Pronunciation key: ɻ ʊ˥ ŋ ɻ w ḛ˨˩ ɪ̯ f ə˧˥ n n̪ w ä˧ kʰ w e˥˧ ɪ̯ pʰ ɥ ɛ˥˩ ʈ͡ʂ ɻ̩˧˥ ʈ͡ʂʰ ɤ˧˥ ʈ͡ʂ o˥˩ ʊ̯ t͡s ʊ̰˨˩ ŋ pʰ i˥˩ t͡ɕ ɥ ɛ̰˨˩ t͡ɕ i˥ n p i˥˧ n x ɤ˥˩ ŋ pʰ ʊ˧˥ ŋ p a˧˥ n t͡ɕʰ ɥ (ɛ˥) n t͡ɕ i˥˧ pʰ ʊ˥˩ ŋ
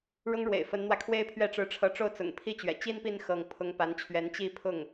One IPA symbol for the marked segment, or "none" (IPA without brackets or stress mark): ɛ˧˥